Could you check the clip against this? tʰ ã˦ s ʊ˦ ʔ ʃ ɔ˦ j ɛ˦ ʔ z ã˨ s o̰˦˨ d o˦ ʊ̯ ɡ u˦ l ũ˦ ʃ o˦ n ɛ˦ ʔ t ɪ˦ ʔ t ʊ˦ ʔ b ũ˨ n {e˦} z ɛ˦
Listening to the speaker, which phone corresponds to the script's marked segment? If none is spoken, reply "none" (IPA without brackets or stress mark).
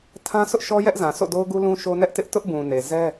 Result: e˨